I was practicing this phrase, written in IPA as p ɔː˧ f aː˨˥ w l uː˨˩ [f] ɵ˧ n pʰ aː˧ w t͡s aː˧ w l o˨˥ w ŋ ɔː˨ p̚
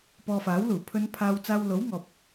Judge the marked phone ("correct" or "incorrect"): incorrect